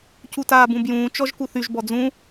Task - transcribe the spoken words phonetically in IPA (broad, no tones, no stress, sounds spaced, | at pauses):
c u t aː b ũ b j ũː t͡ʃ ɔ ʒ k u θ y ʒ b ɔ d͡z ũ